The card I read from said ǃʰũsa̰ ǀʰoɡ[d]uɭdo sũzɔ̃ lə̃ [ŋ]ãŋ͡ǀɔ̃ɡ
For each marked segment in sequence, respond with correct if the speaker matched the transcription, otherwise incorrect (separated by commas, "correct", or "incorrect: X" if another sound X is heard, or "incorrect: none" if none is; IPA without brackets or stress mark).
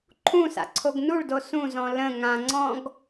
incorrect: n, correct